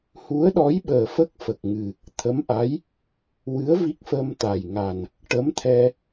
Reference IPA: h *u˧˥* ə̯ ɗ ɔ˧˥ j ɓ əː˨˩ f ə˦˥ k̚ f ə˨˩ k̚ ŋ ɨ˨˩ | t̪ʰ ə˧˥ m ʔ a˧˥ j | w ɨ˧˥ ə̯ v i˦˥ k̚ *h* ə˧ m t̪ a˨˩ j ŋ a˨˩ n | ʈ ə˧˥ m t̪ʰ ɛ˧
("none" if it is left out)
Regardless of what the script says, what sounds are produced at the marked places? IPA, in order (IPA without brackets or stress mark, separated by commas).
u˧˥, f